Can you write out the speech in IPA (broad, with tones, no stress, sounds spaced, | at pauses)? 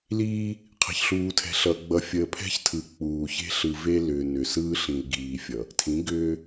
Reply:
l iː˦ | qʰ ə̤˨ ç ɬ uː˨ tʰ ɛ̤˨ ɬ ʌ˨ ɡ͡b ʌ˨ fʲ əː˨ pʰ ɛ̤˦ ç tʰ ɯ˨ k͡p uː˨ ç e̤˦ ɬ ɯ˨ v e˦ l ʏː˨ n ʏ˨ s ɯː˦ ɬ ĩ˨ l ɡ iː˨ fʲ ʌ˨ | tʰ ĩ˨˦ ɡ ʏː˦